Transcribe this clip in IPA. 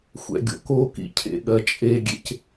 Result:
xʷ ɛ̰ ɡʲ o̰ k o k ḭ cʰ ḛ ɠ ɜ t͡ʃʼ e ɡʲ ḛ c

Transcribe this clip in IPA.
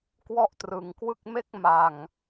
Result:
k w ɔ˥˩ ʔ t r ɯ˨˩ ŋ k w ɯ˥˩ k̚ m e˥˩ k̚ m a˨˩ ŋ

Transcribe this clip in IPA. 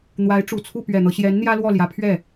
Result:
n̪ w a˧˥ ɪ̯ ʈ͡ʂ u˨˩ t͡sʰ u˥˩ p ɥ ɛ˨˩ n̪ ɤ˦ ɕ j ɛ˧˥ n n̪ j ä˥ l w ɔ˥˩ l j ä˧˥ pʰ ɥ ɛ˥˩

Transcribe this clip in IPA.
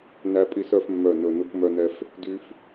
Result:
n æ˦ pʼ i˦ s œ˦ f mː œ˦˨ n ɵ˦˨ n u˦ k m œ˦ n ɛ˦ f | d y˦ f

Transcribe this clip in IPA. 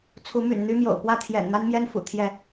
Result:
t͡sʰ u˨˦ m y̰˨˩ n n̪ y˦ m j o̰˨˩ ʊ̯ p w ä˥˨ t̪ʰ j ɛ̰˨˩ n n̪ a˦ n m j ɛ˦ n f ṵ˨˩ t̪ʰ j ɛ˥˨

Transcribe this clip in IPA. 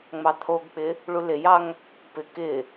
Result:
ŋ͡m ɑ t̪ʰ o ɡ k͡p ɪ | ɭ u l ɪ j ɑ ŋ | p ɪ k ɪ

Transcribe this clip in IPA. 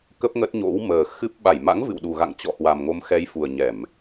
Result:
k ə˦˥ p̚ ŋ ə˦˥ t̚ ɲ o̰˧˥ w m əː˨˩ x ɨ˦˥ p̚ ɓ a˧˩ j m a̰˧˥ ŋ v ɨ̰˧˨ w ɗ u˨˩ ɣ a̰˧˨ ŋ t͡ɕ ɔ̰˧˨ h w a˨˩ m ŋ o˨˦ m x ɛ˨˦ j f u˨˩ ə̯ ɲ ɛ˧˩˨ m

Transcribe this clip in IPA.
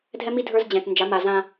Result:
dʱ ɛ˦ m i˦ dʱ ə˞˦ z d͡ʑ ɛ̃˨ t n d͡ʒ a˨˦ m a˨ z ã˦

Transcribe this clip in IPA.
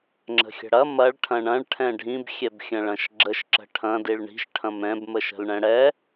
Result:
ŋ͡ǁ ə̤ xʲ ə̤ ɽ ɐ m ɐ ɭ ʈʰ ɐ̃ ɳ ɐ̃ ɭ ʈʰ ɛ̃ ɖʱ ĩ b xʲ ɛ b xʲ ɐ̃ ɭ ɐ̃ ʃ ɡ͡ǁ ə ʃ ǁ ə̤ ʈʰ ɐ̃ d i ɭ ɳ i̤ ʃ ʈʰ ɐ̃ m ɛ̃ b m ə ʃ ə̤ l ɳ ɛ̃ ɽ ɛ

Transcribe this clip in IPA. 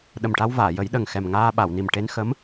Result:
ɗ ə˨˩ m ʈ a˧ w v aː˨˩˨ j ə˨˩˦ j ɗ ə˨˩ ŋ x ɛ˨˩ m ŋ aː˧ ɓ a˨˩˨ w n i˨˩ m ʈ e˧ n x ə˧˥ m

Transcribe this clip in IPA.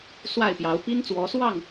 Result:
s w a˥˨ ɪ̯ p j ɑ˨˦ ʊ̯ p i˦ n t͡s w ɔ˨˦ s w ɑ˥˨ ŋ

